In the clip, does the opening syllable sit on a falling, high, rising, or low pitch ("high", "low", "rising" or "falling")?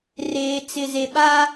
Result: low